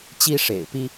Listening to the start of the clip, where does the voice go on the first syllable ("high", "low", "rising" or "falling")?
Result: high